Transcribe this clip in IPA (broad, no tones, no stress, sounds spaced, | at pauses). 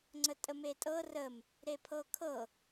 ŋ͡ǀ ə tʼ ə m e tʼ ɤ r ə m | ɾ e pʰ ɤ kʰ ɤ